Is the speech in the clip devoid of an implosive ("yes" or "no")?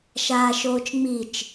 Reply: yes